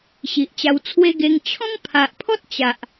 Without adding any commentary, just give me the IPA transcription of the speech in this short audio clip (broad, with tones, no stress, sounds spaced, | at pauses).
ɕ i˨ ʔ t͡ɕ a˧ w t͡sʰ w e˦ ɡ e˧ ŋ t͡ɕʰ ɔ̃˦ ŋ pʰ a˨ ʔ pʰ ɔ˦ t̚ t͡ɕ a˨ ʔ